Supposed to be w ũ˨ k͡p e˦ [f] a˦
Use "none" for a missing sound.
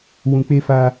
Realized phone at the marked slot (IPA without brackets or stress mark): f